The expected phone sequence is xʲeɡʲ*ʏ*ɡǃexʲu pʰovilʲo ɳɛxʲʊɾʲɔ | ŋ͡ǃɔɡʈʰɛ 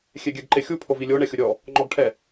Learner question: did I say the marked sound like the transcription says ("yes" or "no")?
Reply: no